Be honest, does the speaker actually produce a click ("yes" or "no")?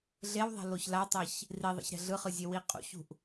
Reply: no